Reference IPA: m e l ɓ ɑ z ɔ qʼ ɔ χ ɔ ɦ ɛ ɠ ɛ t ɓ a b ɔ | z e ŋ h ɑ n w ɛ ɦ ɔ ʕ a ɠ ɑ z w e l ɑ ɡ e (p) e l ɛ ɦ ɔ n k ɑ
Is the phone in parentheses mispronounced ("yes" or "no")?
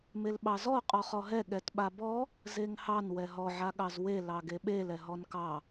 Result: yes